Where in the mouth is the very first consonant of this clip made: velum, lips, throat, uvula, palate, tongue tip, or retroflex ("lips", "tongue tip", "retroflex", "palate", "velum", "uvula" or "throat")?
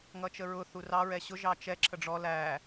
velum